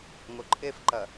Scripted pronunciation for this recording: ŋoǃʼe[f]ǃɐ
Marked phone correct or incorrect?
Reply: correct